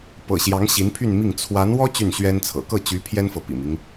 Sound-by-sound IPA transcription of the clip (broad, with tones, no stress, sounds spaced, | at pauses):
p ɤ̰˨˩ ɕ j ɑ˧˥ ŋ ɕ i˧˥ n pʰ y˥˧ n m i˥˩ ŋ t͡sʰ w a˧˥ n w ɔ˥ t͡ɕ y˥˩ n ɕ ɥ ɛ˥ n t͡sʰ ɤ̰˨˩ k ɤ˥˩ t͡ɕ y˧˥ pʰ j ɛ˥ n f ɤ˨ p ḭ˨˩ m i˦ ŋ